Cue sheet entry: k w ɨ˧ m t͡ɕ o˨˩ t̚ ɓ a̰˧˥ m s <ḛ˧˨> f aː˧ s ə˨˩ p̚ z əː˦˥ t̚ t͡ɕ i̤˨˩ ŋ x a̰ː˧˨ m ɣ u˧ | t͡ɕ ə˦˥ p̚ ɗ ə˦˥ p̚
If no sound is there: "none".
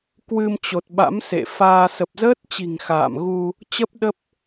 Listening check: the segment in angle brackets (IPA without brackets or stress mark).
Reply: ḛ˧˨